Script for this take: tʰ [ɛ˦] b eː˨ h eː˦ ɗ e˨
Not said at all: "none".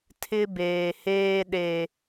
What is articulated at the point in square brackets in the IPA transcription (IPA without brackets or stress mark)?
ɪ˦